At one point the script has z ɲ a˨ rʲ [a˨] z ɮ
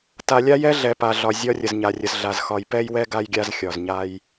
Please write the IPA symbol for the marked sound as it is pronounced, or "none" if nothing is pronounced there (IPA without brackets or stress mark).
ə˨